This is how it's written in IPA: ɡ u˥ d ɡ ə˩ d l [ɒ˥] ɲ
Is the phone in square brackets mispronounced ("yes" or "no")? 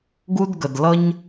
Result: yes